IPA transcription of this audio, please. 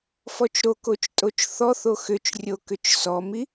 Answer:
fɔt͡ʃɾokot͡ʃ tʼot͡ʃθɔθo xʏt͡ʃrʲo kʏt͡ʃsɔmi

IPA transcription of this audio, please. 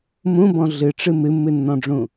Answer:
mũbɔ̃ ɮɨʈ͡ʂɨ mɨmːɨnːɔ̃ɖ͡ʐũ

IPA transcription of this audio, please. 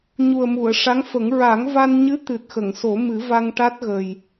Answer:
ɲu˨˩ə̯mu˨˩˨ə̯ʂa˧˥ŋfə˨˩˦ŋ ɹa˨˩˦ŋva˧n ɲɨ˧˥ t̪ɨ˨˩t̚xə˨˩˨ŋso˨˩˦mɨ˨˩˦ va˧ŋʈa˦˥t̚ɣə˨˩j

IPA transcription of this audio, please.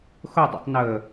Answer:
xʊ dˤḭtˤnə

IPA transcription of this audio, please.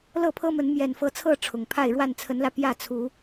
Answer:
lɤ˥˨pʰɤ˦mə˨˦n mjɛ˨˩nfɤ˨˦t͡sʰɤ˥˨ ʈ͡ʂʰʊ˨˩ŋ pʰa˥˨ɪ̯ ɻwa˥˨nt͡sʰə˨˦nlä˧ pjä˥˨t͡sʰu˨˦

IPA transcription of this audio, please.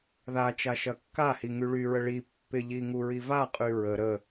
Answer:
ðat͡ʃa ʃɐkːahi ŋyɭyɹə ɭi pːɪʎi ŋuɹivaqʼy ɹə ɾə

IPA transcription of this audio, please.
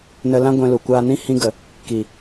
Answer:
nə˧lã˦ ɡʷɛ̃˧lu˨kʷaː˧nĩ˦ hĩ˧ɡə˨ | ki˨

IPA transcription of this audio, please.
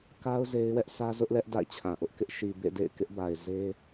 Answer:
ka˦ʊ̯ ze˦ɪ̯wɛ˦ʔ sʰä˦ zʊ˦ʔlɛ˦ʔ da̰˦˨ɪ̯t͡ɕʰã˨ʔʊ˦ʔkɪ˦ʔ ʃi˨ bḛ˦˨dḛ˦˨ɪ̯ kɪ˦ʔba˨ɪ̯ ze˦

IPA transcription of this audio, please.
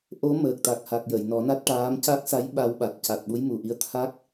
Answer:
ʔo˧˥məː˨˩k̚t̪a˨˩k̚ha˨˩k̚ jə˨˩˨jnɔ˨˩˦na˦˥t̚ʈaː˧˥m ca˦˥k̚sa˧˥j ɓa˧w ɓa˨˩t̚ca˨˩t̚ ɓu˧˥jmu˨˩ʔi˧ə̯ t̪ʰa˦˥k̚

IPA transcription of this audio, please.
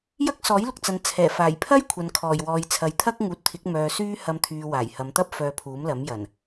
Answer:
jɐ˥k̚sɔː˨˥jlʊ˨k̚t͡sɐ˨n t͡sʰɛː˨˩faː˨˩jpʰɐ˥j kʷʰɐ˨nkʰɔː˨˩jwɔː˨j t͡sʰɐ˨jt̪ʰɐ˥k̚ ŋuː˨t̚t̪ʰɪ˨˥k̚ mœː˨ syː˥ hɐ˧mt̪ʰyː˨ waː˨˩jhɐ˨˧mt̪ɐ˥p̚ fœː˧pʰuː˨˥mlɐ˨˥m jɐ˨˩n

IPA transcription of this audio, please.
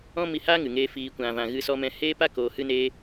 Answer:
ɔ̃˦mi˧haː˦ ŋɨ˨ŋeː˦fiː˧ kʷã˨vã˨ ɣɨ˧sɔ˧mɛ̃˧ heː˦pa˦koː˨ hɨ˧neː˧

